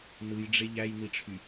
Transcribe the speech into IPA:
n ɯ j ɖ͡ʐ e ʎ æ j n i ʈ͡ʂʰ y

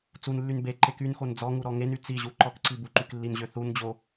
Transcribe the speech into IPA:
t͡s u n lː y n b e ǃ e k y n x o n d͡z ɔ ŋ u ɾ ɔ ŋ e n y t͡s i ʑ u ǃ ɔ k ǀ i b u ǃ y k lː i n ʑ ø θ u n d͡ʑ o

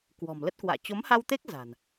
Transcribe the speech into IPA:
k w ɔ̤˨˩ m l ə˦˥ t̚ k w a̰ː˧˨ t͡ɕ o˨˦ m h a˧ w t̪ e˦˥ k̚ z a̤˨˩ n

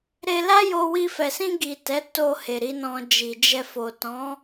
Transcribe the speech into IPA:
ɾ e˧ l a˦ j o˧ w i˧ f ɛ˨ s ĩ˧ ɡ i˨ t ɛ˨˦ t o˧ h e˨ ɾ i˨˦ n ɔ̃˧ d͡ʒ i˨ d͡ʒ ɛ˧ f o˨ t ɔ̃˨˦

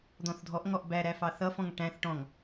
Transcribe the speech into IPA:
d̪ ɔ̃ θ dʱ ɔ ʔ ŋ ɔ ʔ b æ ɾ æ f ɑ θ ʌ f ɔ̃ ŋ ʈ æ̃ θ ʈ ɔ̃ ŋ

